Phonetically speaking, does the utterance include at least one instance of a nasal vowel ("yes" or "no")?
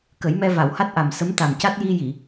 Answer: no